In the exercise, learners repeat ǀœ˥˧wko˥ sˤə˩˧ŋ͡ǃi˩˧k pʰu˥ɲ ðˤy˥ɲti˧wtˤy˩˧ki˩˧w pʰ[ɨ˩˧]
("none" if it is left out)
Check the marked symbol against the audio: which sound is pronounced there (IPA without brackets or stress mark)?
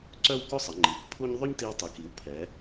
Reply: ɛ˩˧